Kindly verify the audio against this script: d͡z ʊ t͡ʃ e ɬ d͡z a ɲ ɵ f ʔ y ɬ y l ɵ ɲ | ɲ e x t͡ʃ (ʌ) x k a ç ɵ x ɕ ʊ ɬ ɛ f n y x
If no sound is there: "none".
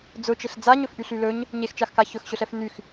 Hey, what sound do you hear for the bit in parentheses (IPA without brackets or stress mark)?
a